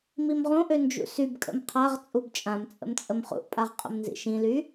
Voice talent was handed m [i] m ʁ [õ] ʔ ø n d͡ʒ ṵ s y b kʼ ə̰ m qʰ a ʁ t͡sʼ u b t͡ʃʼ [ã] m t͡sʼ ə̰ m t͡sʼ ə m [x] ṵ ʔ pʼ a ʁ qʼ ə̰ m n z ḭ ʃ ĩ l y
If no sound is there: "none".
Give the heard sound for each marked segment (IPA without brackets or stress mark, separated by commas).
i, õ, ã, χ